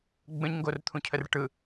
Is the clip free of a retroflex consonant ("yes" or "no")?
no